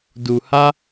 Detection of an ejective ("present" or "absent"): absent